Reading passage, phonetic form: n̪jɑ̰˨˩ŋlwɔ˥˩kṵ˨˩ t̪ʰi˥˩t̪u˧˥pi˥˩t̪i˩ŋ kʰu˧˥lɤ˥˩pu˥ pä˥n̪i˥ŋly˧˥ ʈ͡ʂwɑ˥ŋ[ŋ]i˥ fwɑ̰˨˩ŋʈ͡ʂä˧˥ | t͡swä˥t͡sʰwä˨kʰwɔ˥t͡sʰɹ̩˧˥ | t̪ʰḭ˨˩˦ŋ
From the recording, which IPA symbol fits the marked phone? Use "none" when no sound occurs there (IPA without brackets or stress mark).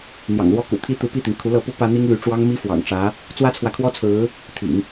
m